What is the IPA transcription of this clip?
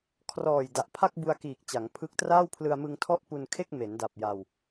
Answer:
kʰrɔː˨˩j da˨˩ʔpʰa˥˩k̚ bu˧a̯kiː˨˩k̚t͡ɕa˩˦ŋpʰɯ˦˥k̚ traː˥˩wpʰlɯ˧a̯ mɯ˧ŋtʰɔ˥˩ʔpu˧nkʰe˥˩k̚ me˩˦nda˨˩p̚ ja˧w

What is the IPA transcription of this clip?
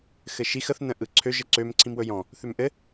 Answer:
xɘʃix əθ nə̃ʔɯǀʰø ʒəǀøm ǀʰĩmwɵjɔ̃ | θømʔɘ

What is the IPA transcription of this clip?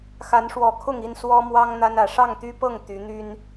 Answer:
xa˨˦nʂwɔ˨˩kʰʊ˥˨ŋi˥˨n swɔ˦mwɑ˦ŋ n̪a˦nä˨˩ ʂɑ˥˨ŋt̪y˦pɤ˥˨ŋ t̪y˨˦n̪y˦n

